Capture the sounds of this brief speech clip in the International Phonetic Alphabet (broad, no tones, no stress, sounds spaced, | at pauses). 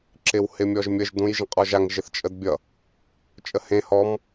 ǁ ɪ w h ɪ mʲ ɔ ʒ mʲ ə ʒ d ũ j ʒ ə̃ qʼ ɔ ʒ a ŋ ʒ ɪ θ t͡ʃʼ ə d bʲ ʌ | t͡ʃʼ ə h ẽ h ɔ m